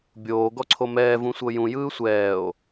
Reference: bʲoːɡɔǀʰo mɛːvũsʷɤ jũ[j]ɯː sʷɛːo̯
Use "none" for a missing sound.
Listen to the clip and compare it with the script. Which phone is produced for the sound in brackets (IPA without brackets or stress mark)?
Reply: j